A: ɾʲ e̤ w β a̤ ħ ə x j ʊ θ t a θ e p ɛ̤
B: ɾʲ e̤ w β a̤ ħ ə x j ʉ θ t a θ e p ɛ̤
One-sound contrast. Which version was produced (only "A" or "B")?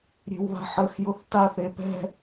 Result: A